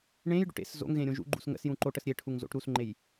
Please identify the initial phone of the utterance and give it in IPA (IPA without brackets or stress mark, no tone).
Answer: ɳ